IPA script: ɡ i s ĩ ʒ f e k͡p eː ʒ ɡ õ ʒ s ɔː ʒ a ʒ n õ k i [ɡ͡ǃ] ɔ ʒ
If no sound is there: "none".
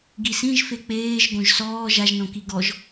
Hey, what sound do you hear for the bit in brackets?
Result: ɡ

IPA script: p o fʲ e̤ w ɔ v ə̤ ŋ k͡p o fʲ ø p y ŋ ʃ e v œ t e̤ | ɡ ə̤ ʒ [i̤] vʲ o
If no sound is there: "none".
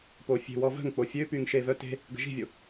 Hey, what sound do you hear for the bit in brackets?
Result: i̤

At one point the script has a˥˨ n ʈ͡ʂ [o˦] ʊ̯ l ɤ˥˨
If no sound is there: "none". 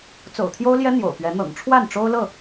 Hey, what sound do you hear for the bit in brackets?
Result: o˦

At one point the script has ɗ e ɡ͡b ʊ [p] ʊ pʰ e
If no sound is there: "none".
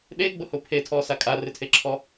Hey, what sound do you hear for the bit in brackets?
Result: h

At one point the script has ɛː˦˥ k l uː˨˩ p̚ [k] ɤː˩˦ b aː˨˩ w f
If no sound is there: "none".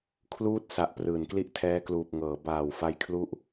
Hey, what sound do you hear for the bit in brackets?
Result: ŋ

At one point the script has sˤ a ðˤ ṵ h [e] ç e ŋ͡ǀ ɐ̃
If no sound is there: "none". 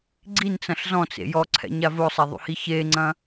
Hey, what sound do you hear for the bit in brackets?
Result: i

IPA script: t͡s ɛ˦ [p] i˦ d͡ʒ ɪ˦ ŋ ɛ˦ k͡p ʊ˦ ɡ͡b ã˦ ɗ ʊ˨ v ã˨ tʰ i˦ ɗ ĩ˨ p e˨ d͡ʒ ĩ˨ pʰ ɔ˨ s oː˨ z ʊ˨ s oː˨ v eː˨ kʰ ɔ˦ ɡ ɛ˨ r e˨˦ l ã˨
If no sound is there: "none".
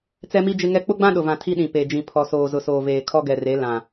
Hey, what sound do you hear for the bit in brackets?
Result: m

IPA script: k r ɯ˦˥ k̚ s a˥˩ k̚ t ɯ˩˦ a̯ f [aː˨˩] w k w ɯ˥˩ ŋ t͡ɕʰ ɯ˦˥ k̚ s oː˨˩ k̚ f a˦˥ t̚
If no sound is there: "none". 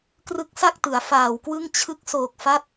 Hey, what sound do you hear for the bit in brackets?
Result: aː˨˩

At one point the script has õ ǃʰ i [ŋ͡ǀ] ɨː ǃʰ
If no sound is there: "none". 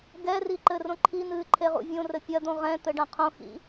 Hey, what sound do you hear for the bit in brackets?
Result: n̪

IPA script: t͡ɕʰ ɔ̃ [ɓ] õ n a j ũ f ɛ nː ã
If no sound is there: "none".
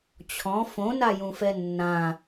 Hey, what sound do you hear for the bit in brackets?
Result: f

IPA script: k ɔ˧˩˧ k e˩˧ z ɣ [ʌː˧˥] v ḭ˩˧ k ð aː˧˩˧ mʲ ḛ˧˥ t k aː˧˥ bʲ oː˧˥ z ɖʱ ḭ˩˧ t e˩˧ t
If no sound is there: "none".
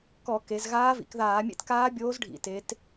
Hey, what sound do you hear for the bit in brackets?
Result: aː˧˥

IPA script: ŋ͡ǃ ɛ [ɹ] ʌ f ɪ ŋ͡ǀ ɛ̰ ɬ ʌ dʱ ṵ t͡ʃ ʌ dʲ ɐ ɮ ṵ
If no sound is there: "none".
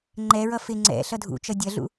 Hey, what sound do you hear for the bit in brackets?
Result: ɹ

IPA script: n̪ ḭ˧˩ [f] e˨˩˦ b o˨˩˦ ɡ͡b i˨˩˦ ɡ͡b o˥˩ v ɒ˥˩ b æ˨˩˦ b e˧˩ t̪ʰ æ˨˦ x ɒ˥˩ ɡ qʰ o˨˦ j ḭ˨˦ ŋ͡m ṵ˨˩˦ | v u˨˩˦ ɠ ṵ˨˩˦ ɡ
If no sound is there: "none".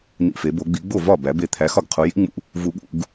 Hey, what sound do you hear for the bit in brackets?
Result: f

